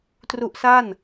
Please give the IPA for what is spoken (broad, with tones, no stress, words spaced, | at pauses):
tru˦˥ʔsa˥˩n